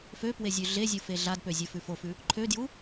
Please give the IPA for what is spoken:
f ø p w e zʲ ʉ ɮ e zʲ u f e ɮ a d p ø zʲ ə˞ f ʉ f o f ʉ | ǃʰ ø d j u

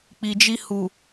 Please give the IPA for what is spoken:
k͡p i˨ d͡ʒ i˧ h u˨

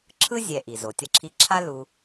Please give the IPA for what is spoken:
ǁʰ ɯ˥ zʲ ɛ˨ ʔ i˩ z o˩ tʲ ʌ˨ ǁʰ i˨ ǁʰ a˦ l u˨

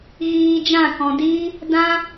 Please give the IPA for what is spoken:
ɣ iː˧ d͡ʒ ã˦˨ k ɔ̃˨ d iː˦ | d ã˦

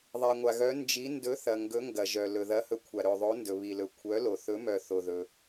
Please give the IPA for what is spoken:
ðˤ ɛ˩ ŋʷ a˩ ɣ œ˨˥ n d͡ʒ i˨˥ n d ɵ˨˥ θ ɐ˩ ŋ ɡ ɵ˨˥ ŋ ɡ ɐ˩ ʒ œ˩ l ɵ˩ ð ɐ˨˥ h ɵ˨˥ kʷʰ a˩ ɾ ɵ˩ ðˤ o˨˥ n d ɵ˩ β i˩ l ɵ˩ kʷʰ œ˨˥ l o˩ θ ɵ˨˥ m œ˩ θ o˩ ð ɵ˩

